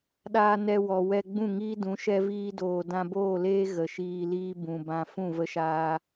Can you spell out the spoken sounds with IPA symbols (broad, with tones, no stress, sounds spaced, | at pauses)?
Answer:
ɗ aː˧ n ɛ˧ w ɔ˨ w ɛ˧ ɡ͡b ũ˦˨ ŋ iː˦ d ũ˨˦ ʃ ɛ˦ v iː˦ d oː˨ d ã˧ b oː˦˨ l eː˦ ɣ ə˨ ʃ iː˧ l iː˦ b ũ˨ b ã˧ f ũ˦˨ v ə˧ ʃ aː˧